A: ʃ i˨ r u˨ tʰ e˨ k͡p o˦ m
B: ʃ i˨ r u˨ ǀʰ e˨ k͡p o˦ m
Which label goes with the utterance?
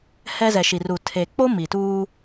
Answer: A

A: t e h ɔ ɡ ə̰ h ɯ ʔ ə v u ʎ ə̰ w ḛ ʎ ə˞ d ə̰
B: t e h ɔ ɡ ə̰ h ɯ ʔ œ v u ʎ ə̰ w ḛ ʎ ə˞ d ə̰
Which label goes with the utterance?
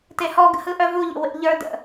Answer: B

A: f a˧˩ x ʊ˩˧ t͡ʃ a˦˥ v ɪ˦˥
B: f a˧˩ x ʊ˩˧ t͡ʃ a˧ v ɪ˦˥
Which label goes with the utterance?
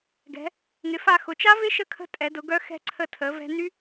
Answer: A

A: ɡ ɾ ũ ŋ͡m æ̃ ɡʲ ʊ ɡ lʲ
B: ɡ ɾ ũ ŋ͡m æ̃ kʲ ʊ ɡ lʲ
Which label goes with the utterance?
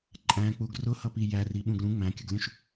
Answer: B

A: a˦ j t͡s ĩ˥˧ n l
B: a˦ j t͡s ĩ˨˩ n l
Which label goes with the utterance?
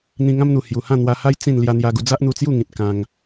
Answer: A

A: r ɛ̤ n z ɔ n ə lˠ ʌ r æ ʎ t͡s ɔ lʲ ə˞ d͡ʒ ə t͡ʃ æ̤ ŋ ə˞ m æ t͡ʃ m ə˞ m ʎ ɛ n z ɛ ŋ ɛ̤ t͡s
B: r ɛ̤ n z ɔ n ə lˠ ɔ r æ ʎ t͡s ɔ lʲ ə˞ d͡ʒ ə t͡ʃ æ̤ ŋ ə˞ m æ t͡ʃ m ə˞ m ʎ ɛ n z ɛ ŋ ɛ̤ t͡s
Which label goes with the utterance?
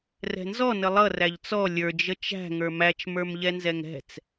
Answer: A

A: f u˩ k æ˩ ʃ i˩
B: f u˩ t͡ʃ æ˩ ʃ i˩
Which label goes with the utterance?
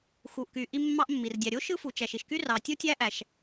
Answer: B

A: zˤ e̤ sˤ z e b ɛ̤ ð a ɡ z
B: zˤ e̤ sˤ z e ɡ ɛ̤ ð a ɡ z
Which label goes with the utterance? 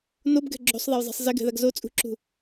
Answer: B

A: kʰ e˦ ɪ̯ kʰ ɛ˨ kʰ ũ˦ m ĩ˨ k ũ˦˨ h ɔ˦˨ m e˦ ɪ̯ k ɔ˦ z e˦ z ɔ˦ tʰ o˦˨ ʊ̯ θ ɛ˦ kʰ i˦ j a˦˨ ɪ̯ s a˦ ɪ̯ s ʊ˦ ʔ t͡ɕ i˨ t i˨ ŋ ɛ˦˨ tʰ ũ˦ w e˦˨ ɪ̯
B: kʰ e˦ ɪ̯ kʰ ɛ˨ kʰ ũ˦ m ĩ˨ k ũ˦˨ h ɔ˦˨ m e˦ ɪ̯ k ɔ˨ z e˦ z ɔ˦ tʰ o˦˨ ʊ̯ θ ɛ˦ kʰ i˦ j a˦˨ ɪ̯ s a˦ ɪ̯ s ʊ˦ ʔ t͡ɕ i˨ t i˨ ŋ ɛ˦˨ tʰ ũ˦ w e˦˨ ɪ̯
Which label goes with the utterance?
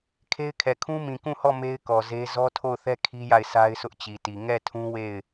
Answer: B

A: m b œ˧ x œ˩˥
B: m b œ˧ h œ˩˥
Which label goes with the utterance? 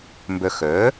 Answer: A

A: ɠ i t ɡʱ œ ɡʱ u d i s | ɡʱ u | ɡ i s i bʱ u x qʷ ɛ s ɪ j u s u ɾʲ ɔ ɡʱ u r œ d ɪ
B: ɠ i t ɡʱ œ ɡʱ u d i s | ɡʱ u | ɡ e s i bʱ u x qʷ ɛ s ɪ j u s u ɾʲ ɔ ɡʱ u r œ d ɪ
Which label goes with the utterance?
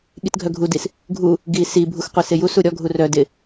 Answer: A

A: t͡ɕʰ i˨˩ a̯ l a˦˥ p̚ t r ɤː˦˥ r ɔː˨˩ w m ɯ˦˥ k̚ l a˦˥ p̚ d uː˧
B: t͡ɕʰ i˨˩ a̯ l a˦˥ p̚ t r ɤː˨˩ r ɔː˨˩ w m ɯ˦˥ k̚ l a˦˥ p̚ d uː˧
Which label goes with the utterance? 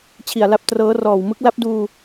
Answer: A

